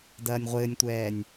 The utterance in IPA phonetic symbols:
dɐːnʲʁʷɘːnʲtʷɛːnʲ

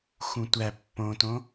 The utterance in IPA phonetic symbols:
xũtʷæ pːõtõ

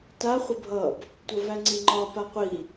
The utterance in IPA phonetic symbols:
ta χʷəbʱʌb | tʷʌvæŋ͡ǀiŋ͡ǃɒ paqʷi

